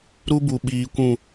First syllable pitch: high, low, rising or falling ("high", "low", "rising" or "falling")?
high